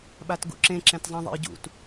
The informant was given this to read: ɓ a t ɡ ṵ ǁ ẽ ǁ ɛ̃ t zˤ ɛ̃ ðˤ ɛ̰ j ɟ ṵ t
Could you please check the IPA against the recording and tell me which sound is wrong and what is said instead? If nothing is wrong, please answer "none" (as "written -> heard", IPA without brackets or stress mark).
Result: none